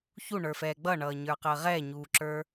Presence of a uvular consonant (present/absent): present